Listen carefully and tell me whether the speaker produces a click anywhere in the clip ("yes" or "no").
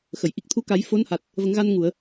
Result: no